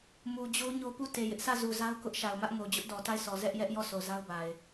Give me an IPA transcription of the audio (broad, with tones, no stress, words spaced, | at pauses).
mu˨d͡ʑo˦ ɲo˦pu˦˨ te˨jɪ˦ʔ sä˦˨zu˨za˦ʊ̯ kʊ˦ʔʃa˨ʊ̯mä˦ʔŋo˨ d͡ʑʊ˦ʔdɔ˨ta˦˨ɪ̯sɔ˨ zɛ˦ʔjɛ˦ʔjɔ˦˨ so˨za˦ʊ̯ba˨ɪ̯